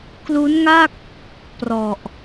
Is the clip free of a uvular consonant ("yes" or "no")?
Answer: yes